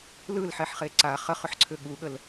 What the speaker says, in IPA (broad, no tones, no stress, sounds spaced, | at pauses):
l ɯ l ħ ɛ ħ χ e ǀ a χ ə χ ʏ ħ ǀʰ ʏ ɠ u ɠ ə l